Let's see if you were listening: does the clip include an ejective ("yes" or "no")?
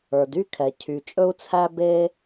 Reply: yes